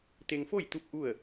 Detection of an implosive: absent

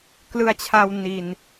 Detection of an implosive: absent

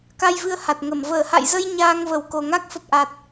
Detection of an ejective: absent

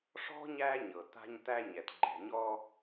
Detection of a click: present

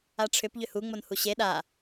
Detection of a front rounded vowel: present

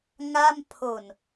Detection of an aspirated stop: present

